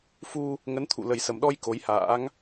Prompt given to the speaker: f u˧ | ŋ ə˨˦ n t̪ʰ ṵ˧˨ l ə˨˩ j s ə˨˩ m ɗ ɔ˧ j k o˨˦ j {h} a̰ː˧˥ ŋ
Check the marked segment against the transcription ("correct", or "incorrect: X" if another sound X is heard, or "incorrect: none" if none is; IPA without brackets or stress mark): correct